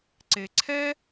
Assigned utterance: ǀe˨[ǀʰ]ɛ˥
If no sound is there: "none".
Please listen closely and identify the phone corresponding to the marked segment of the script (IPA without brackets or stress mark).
ǀʰ